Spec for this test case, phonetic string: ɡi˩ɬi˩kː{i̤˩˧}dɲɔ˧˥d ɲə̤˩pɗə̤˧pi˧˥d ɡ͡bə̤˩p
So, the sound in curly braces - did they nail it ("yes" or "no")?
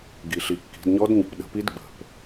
yes